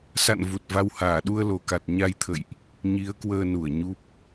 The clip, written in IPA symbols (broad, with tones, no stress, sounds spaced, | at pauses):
s a̰˧˨ n v u˨˩ t̚ v a˧ w h aː˧˩ ɗ u˧ ə̯ l o˨˩ k a˨˩ t̚ ɲ a˧ j t̪ʰ ə̰˧˨ j ʔ | ɲ i˨˦ ə̯ k w əː˧ n u˧˩ ə̯ ɲ u˦˥ p̚